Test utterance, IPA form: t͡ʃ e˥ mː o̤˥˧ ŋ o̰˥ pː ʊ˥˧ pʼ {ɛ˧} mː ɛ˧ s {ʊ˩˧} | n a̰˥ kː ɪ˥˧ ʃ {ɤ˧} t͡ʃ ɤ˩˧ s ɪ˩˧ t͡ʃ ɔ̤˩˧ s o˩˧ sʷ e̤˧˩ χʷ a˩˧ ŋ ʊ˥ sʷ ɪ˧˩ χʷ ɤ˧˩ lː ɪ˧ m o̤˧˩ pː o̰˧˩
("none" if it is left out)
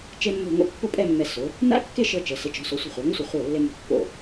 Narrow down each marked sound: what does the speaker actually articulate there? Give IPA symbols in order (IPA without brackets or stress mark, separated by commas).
ɛ˥˧, ʊ˩˧, ɤ˧